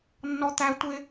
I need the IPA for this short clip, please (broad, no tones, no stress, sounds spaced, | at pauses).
nː ɔ t̪ æ tʷ ɪ